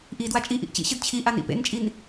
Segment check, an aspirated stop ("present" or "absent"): present